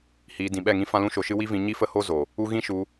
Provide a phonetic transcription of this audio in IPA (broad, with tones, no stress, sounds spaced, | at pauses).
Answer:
h iː˧ d ĩ˨ ɓ ɛ˦˨ ŋ ĩ˦ f ã˦ l ũ˦ ʃ o˧ ʃ ɨ˦ w i˦ v ĩ˧ ɲ i˦ f ə˦ h o˦ z o˨ | u˦ ɣ ĩ˦ ʃ u˧